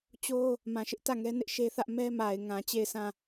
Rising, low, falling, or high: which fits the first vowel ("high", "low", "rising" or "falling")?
high